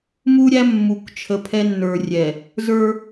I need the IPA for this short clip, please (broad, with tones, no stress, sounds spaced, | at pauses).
m u˦ ɾʲ æ˦ mː u˨ k t͡ʃʰ ə˨ pʰ ɛ˦ nː ə˞˨ rʲ ɛ˨ | z ə˞˦